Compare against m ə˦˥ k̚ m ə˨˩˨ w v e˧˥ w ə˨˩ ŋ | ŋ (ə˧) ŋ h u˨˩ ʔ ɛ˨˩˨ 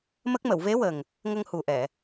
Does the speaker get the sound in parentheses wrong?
no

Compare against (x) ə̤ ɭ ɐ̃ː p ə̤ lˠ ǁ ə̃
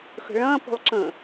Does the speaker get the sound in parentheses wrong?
no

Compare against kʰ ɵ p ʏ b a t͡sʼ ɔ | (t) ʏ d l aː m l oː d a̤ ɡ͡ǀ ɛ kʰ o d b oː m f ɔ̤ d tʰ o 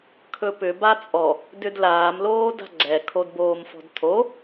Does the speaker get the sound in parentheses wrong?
yes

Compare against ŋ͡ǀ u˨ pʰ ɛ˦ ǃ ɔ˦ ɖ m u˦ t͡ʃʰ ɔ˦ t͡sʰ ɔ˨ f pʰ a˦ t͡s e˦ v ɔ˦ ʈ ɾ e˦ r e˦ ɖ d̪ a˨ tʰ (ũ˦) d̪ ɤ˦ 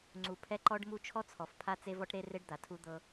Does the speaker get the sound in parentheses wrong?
yes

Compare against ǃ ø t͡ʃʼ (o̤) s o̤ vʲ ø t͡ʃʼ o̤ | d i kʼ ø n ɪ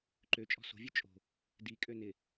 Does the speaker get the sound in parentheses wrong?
yes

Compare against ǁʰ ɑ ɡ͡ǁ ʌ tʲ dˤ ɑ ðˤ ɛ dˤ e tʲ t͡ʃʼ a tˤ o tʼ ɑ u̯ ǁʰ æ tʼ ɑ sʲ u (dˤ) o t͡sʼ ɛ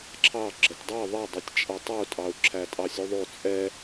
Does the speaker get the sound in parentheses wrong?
yes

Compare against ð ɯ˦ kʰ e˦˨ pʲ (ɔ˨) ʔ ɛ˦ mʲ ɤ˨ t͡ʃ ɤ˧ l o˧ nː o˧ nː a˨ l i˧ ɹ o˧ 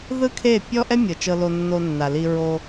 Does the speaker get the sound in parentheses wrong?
yes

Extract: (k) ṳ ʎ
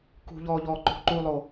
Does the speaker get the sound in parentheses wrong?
no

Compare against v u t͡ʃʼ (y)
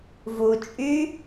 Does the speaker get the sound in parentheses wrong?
no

